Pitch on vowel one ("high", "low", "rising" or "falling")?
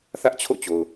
high